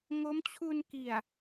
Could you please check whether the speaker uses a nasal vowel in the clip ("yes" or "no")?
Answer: no